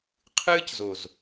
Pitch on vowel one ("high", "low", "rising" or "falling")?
high